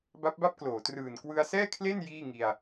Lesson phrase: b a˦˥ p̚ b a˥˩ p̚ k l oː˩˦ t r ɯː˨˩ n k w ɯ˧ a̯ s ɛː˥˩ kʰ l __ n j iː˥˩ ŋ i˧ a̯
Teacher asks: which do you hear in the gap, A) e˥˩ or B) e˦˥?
A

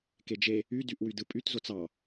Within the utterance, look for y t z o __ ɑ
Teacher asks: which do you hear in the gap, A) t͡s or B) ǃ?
A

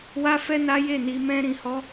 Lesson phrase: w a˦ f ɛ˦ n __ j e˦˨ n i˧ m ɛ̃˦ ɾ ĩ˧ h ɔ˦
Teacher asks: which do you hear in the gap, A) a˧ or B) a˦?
B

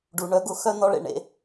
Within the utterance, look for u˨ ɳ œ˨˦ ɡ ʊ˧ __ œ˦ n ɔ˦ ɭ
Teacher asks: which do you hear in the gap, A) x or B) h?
A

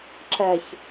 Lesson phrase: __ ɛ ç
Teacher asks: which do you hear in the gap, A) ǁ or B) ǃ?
A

